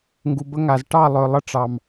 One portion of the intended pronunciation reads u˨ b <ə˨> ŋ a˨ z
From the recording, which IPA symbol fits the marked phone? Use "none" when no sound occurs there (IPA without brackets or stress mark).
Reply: ə˦